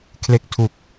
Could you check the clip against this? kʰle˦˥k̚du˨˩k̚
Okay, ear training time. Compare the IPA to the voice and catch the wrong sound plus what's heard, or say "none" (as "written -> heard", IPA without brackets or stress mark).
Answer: d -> tʰ